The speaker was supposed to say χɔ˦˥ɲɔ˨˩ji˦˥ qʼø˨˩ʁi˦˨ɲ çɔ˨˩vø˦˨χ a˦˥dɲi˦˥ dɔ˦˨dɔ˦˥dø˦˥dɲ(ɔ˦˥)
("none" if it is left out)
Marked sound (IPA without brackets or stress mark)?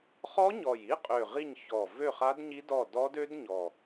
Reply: ɔ˨˩